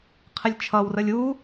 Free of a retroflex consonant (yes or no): yes